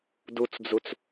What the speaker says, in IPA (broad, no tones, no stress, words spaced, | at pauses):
dut͡sd͡zut͡s